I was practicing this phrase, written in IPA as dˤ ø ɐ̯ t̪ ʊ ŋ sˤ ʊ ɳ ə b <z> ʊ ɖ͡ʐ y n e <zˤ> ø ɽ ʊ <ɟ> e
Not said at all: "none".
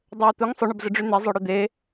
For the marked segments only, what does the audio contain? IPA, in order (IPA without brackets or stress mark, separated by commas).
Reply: z, zˤ, d̪